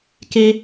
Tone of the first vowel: high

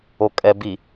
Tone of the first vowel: low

